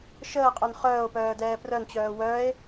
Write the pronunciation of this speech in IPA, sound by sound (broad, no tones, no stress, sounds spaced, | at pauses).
ʃ əː qʼ œ n χ œː o̯ p œː d ɛː p r œ n t͡ɕ œː w œ e̯